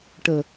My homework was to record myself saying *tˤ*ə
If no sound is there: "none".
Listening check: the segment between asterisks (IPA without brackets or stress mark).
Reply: ʈ